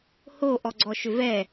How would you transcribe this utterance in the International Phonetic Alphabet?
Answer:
h o ʔ ɔ ɡ͡ǀ ɔ ʃ ʏ v ɛ

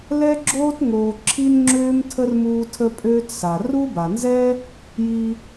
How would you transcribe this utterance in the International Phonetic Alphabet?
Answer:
l ɛ˥ ɡ͡ǁ oː˥ t ŋ oː˧ ǁʰ i˥ n ŋ͡ǁ øː˥ m tʰ ə˥ r m uː˧ tʰ ə˧ pʼ øː˧ t s a˩ r u˥ b a˩ n z ɛ˥ | j i˧

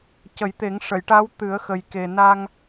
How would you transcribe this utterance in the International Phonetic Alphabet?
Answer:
c ə˨˩˦ j t̪ e˨˩˦ ŋ ʂ ə˨˩˨ j ʈ a˧˥ w t̪ ɨ˨˩˦ ə̯ x ə˨˩ j k e˨˩ n a˧ ŋ

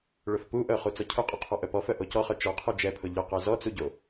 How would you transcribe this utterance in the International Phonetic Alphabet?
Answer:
ɭ ʊ f p u ʔ œ χ u t͡s ɔ cʰ ʊ qʼ ʊ qʰ ɔ ʔ œ p ɔ f œ ʔ o c ɔ χ œ t͡ʃ ɔ qʰ u d͡ʒ ɛ pʰ ʊ ʎ ʊ q œ z ɔ t͡s u ɟ o

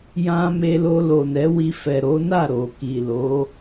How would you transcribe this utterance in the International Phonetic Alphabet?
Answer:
j ã˧ m e˧ l o˧ l o˨ n ɛ˨˦ w i˧ f ɛ˨ ɾ o˨˦ n a˦˨ ɾ o˨ k i˨ l o˨˦

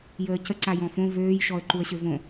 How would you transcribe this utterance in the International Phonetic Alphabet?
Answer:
j əː c ə ǀ a j ɔ̃ f õ v øː j ʃ ɔ ə̯ ǃ u ə̯ ɕ ø v õ

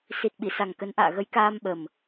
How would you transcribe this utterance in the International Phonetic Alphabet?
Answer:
s i˨˩ t̚ ɓ i˧˩ s a˨˩ ŋ k ə˨˦ n ʔ a̰ː˧˨ ɣ ə˨˦ j k aː˧ m ɓ ə˨˩ m

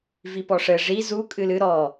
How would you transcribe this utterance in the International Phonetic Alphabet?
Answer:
v i p ɔ ʂ ɘ ʐ i z u kʼ ɨ l ɨ ɾ ɔ

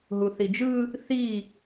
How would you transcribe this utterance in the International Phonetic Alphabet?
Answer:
ɦ u θ i d͡ʒ ɯ | θ i

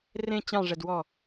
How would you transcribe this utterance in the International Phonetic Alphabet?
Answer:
r ẽ t͡ɕ ɑ̃ ʐ ɛ d w ɔ

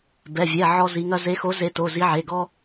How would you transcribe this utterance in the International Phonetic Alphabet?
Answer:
b ɛ˩˧˩ vʲ ɛ˩˧˩ ʕ ɔ˦ z i˨˦ ŋ ɐ˦ z e˨˦ x o˨˦ z e˨˦ t o˩˧˩ z i˨˦ ʕ e˩˧˩ ɡ ɔ˦

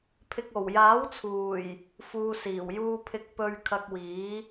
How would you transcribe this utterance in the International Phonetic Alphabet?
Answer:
pʰ ɪ˨ k̚ o˨˩ w j aː˨˥ w t͡sʰ uː˨˩ j | f uː˨ s iː˨˩ w j uː˧ pʰ ɪ˧ k̚ p ɵ˧ ɥ kʰ ɐ˧ k̚ w iː˨˥

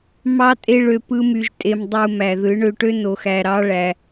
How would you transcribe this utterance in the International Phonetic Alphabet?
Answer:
m ɑ˦ tʼ e˦ ɭ ø˧ p ɯ˦ m y˧ ʒ tʼ e˧ m dˤ u˧ m æ˨ ð ɯ˨˦ ɳ ø˧ ʈ ø˦ n o˧ x æ˧ ɾ ɑ˦ ɭ æ˧

